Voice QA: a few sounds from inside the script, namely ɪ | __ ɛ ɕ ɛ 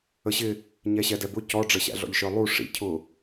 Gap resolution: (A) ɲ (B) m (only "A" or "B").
A